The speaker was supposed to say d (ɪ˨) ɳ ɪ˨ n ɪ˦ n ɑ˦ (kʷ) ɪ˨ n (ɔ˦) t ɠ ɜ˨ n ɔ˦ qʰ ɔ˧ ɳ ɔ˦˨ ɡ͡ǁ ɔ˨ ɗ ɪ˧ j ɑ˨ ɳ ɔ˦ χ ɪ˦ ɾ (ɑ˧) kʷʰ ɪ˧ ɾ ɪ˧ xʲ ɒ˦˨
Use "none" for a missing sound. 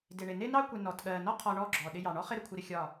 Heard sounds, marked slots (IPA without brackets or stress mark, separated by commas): ɪ˨, kʷ, ɔ˨, ə˧